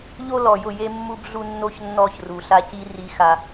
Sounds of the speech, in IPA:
ʎ o˦ l ɔ˨ j ʊ˦˨ j e˦ mː u˦ b ɮ u˦ nː o˦ ç nː ɔ˦˨ ç r u˨ ɬ a˦ c i˦ r i˦ x a˦

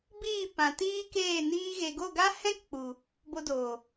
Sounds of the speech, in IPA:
b iː˦˨ p ã˨ t iː˦ k eː˦˨ n iː˧ ɣ e˨ ɡ o˦˨ ɡ a˦ h ɛ̃˦ k k͡p u˨ | b o˧ d oː˨

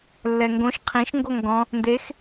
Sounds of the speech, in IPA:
lː ɛ ŋ ɡ õ ʃ qʰ ĩ ʃ ŋ ɡ o ŋ ɡ ɔ̃ | n d e x

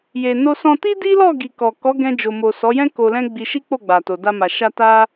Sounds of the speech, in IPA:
j e˨ n o˧ s ɔ̃˧ t i˦ d i˦ l ɔ˦˨ ɡ i˨ k ɔ˨ k ɔ˨˦ ɡ ɛ̃˧ d͡ʒ o˨ m o˨ s ɔ˨˦ j ɛ̃˦ k o˧ l ɛ̃˦ ɡ͡b i˧ ʃ i˦ k͡p o˦˨ ɡ͡b a˨ t o˨ d a˧ m a˨ ʃ a˧ t a˦

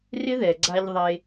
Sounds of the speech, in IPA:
r ɪ˦ ð ɛ˨ ɡ͡ǀ a˧ ʎ ðˤ e˧

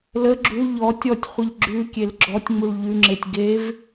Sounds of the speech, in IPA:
l ə ɡ͡ǁ u ʎ ɔ tʲ ɔ tʲ χʷ ə ʎ ɡ͡ǁ ʉ kʲ e l ɡ͡ǁ ɔ tʲ ŋ͡m u ɭ ʎ ʉ ŋ͡ǁ e tʲ ɡ e v

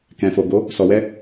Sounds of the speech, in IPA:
k ɛ̃˨ f o˨ ɡ o˨˦ | s ɔ˨ w ɛ˧

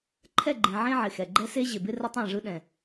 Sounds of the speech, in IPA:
ǃʰ ɛ˦˨ ɡ͡ǃ ẽ˨ ʕ ẽ˦ ʕ ɪ˨ x ɛ˨ ɡ͡ǃ ɛ˦ s e˦ ʑ ɪ˨ b ɪ˦ r ə˦ tˤ ã˦˨ ʐ ɯ˦ ɗ ɛ̃˨

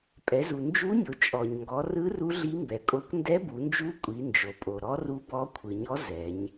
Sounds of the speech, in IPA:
pʼ ɛ˩˧ z u˩ n d͡ʒ u˧˥ nʲ o˩˧ t͡ʃʼ ɔ˩ ɲ ŋ ɡ ɔ˩˧ r ɯ˧˥ r u˧˥ ɮ i˧˥ m b ɛ˩ kʼ o˧˥ kʷ n d ɛ˧˥ b u˩˧ n d͡ʒ u˧˥ kʷʼ i˩˧ n d͡ʒ o˩ pʼ o˩ ɾ ɔ˧˥ r u˧˥ b ɔ˧˥ kʷʰ ɯ˩ ɲ ɔ˧˥ z ɛ˩˧ ɲ

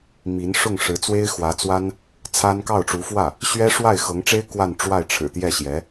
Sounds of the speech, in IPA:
m i˧˥ n ʂ ʊ˥˩ ŋ ʂ ɻ̩˧˥ t͡s w e˥ ɪ̯ x w ä˧˥ t͡s w a˥ n | t͡sʰ a˥ n k ɑ˥˩ ʊ̯ ʈ͡ʂ u˧˥ f w ä˥˩ | ɕ ɥ ɛ˥ ʂ w a˥˩ ɪ̯ x ɤ˧˥ ŋ ʈ͡ʂ e˥ ɪ̯ k w a˥˧ n ʈ͡ʂ w a˥˩ ɪ̯ ʈ͡ʂʰ ɻ̩˨˩ t̪ j ɛ˥˩ ɕ j ɛ˧˥

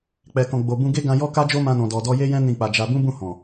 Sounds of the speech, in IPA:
k͡p ɛ˨ k ɔ̃˨ ɡ͡b o˨ b ũ˧ ɡ e˦ ɡ ã˧ j ɔ˦ k a˦ d͡ʒ o˦ m ã˧ n ɔ̃˨ d ɔ˨ d ɔ˧ j e˦ j ɛ̃˦ n ĩ˦˨ k͡p a˧ d͡ʒ a˧ b ũ˦ b ũ˦˨ h ɔ̃˨

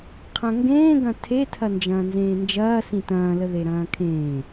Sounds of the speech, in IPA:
qʰ ɐ̃ ŋ ɡ ẽː ɡ ɐ̃ tʰ e tʰ ɐ n d͡ʒ ɐ̃ː n z ẽː n d͡ʒ ɐː s ĩ t ɐ̃ː l ə ð e ɾ ɐ̃ː kʰ ẽː

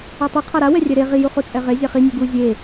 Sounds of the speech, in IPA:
a tˤ u qʰ a ɾ a w ɛ rʲ ɛ ɾ e ʁ i j u χ u t͡sʼ ɛ ʁ e zʲ a χ i nʲ u ɡ u zʲ e

